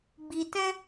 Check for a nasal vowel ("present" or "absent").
present